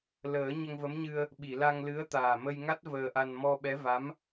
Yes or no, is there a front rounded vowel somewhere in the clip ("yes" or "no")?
no